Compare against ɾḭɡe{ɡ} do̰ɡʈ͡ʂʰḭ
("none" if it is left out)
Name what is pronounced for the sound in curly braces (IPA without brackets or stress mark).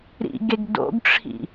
ɡ